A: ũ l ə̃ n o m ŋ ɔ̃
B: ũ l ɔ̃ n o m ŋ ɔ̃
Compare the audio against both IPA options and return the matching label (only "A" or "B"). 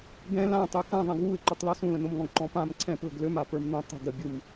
A